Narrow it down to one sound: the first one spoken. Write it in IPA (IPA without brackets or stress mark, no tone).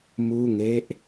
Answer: m